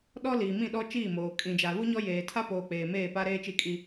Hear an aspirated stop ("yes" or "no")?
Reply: yes